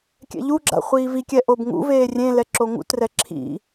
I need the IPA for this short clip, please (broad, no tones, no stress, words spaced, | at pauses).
kʲɛ̰ʎuɡ͡ǁa̰ χʷiːvikʲɛ ʔobŋṵveː rʲẽlɛ ǁoŋṵtrɛ ǁʰḭ